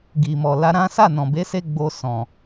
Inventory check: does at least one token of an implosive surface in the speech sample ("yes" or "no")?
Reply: no